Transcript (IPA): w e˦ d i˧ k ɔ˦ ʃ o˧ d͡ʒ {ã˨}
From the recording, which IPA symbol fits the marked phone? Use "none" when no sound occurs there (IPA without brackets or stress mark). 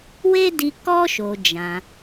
ã˧